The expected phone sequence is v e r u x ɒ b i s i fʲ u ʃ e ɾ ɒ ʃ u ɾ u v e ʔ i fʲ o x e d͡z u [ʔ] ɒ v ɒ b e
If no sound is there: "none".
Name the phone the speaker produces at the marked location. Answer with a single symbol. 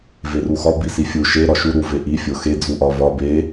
ʔ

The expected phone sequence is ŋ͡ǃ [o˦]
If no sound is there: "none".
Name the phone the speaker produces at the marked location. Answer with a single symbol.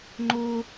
o˦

